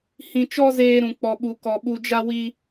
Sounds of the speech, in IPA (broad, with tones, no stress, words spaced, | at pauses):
hĩ˧t͡ʃɔ˦zeː˧ɾũ˨ k͡pɔ˨ɓu˨kɔ˨ ɓu˧d͡ʒa˦wi˦